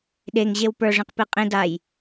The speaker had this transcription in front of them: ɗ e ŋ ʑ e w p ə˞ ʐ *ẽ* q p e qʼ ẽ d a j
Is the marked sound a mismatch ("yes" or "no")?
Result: no